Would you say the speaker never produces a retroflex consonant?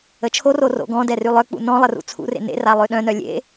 yes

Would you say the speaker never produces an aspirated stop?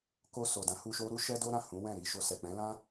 yes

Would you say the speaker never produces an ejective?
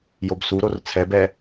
yes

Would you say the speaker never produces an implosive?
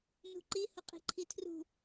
yes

